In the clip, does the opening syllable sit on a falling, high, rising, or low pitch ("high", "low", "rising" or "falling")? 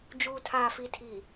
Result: low